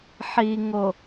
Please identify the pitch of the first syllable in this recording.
low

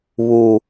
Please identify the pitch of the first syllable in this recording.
high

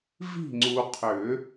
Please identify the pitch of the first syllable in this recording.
falling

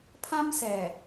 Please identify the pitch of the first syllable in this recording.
high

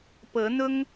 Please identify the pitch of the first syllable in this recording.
rising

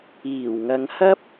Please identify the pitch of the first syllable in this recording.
low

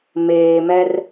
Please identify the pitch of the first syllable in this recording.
low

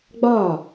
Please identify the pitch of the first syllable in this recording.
falling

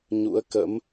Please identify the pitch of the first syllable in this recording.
rising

